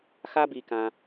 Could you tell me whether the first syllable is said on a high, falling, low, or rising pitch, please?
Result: high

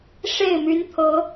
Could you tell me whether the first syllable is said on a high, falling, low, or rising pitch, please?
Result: falling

